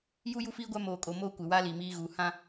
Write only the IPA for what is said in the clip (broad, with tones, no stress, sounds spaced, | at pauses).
j u˦ j u˦ f iː˦ ɡʷ a˦ m oː˨ kʼ o˨ m oː˦ kʷ ɪ˨ w aː˦ l iː˨ m iː˦ ɣ uː˨ h ã˦